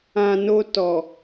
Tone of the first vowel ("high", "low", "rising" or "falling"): low